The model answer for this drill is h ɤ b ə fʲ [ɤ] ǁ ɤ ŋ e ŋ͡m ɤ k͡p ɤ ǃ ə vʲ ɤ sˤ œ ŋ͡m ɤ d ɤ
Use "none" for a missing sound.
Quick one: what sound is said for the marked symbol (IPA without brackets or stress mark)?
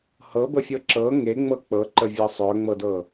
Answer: ɤ